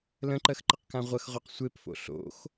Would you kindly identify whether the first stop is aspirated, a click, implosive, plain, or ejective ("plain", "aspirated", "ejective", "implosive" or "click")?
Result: click